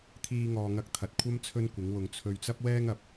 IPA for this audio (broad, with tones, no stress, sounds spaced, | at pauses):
t̪ʰ iː˧ ŋ ɔː˨ ŋ ɐ˧ k̚ t̪ʰ ɐ˨ t̚ kʷʰ ɐ˥ m t͡sʰ ɵ˥ n kʷ ɪ˨˥ ŋ w ʊ˧ ŋ t͡sʰ ɵ˧ ɥ t͡s ɐ˥ p̚ w ɛː˥ ŋ ɐ˨ p̚